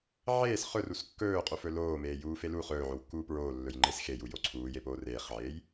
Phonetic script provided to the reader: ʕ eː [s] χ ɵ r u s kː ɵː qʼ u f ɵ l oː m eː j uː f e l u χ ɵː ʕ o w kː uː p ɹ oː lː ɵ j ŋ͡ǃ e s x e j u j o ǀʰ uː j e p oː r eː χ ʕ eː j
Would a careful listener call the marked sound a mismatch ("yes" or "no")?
no